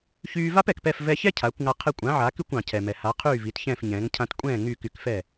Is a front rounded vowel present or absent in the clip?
present